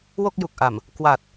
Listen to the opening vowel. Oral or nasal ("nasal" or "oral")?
oral